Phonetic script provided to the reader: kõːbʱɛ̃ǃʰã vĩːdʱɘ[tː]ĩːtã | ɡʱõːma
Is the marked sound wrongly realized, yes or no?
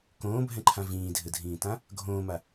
yes